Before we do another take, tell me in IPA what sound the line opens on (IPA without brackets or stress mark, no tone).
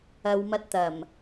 ɐ